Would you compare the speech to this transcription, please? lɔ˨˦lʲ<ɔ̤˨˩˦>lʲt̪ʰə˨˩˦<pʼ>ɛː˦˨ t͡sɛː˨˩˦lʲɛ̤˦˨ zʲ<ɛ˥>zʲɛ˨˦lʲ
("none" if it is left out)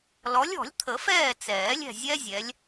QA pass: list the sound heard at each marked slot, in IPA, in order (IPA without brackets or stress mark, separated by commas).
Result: ɔ̤˨˩˦, f, ɛ˥